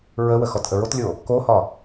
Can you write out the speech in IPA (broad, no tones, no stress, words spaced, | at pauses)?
ɹəwə xɔtʔəɹotlʲo | kohɒ